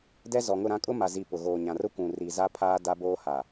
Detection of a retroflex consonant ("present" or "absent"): absent